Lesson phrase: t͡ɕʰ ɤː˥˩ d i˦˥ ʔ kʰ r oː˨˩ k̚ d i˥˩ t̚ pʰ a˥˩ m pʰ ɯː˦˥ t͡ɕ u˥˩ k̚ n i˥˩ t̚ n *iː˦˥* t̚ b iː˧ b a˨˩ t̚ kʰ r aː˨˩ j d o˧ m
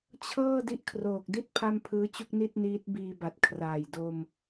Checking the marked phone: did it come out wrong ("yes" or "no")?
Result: no